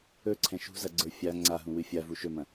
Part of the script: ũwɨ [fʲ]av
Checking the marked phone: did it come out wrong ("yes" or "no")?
no